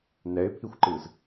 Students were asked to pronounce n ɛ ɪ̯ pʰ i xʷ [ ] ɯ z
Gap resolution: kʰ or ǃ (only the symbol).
ǃ